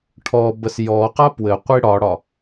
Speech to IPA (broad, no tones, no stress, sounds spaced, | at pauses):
ʈʰ ɔ b ə s j ɔ q a p w ɘ qʷ i ɽ ɒ ɽ ɒ